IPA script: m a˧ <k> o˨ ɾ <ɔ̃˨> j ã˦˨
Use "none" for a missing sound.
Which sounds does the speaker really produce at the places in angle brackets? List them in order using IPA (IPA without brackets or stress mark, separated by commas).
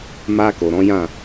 k, ɔ̃˨˦